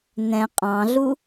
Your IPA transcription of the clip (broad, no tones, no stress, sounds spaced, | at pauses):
n ɛ̃ qʼ ɑ̃ ɮ u